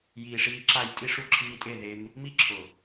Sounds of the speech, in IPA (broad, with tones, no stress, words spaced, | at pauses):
jiː˨ʂiː˧ ǁa˦˨j tʼi˦˨ʂu˦ǁʰiː˧tʼe˦˨ ðe˧m | mi˦ǁʰʊ˨